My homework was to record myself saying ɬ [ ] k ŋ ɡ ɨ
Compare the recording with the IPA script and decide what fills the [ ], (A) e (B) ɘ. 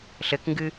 B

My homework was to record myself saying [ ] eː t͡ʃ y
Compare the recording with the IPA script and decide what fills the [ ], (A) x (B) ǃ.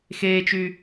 A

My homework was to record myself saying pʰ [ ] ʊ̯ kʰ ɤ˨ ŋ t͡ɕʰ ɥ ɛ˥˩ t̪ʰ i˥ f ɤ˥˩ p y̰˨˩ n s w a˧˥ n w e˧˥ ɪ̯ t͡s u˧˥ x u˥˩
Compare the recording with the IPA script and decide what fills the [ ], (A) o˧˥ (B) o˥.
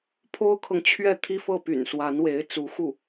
B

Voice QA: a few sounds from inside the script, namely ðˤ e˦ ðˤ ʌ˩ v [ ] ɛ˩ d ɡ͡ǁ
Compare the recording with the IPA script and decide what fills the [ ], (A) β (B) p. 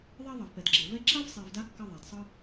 B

